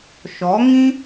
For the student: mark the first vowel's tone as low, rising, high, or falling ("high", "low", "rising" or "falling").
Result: rising